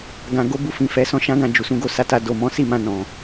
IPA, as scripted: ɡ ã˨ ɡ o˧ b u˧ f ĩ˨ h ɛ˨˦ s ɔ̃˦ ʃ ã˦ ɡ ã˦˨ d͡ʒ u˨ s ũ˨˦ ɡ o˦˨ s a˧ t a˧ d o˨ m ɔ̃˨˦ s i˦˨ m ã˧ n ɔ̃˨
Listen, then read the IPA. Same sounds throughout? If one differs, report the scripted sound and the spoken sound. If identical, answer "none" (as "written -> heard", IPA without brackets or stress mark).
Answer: h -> f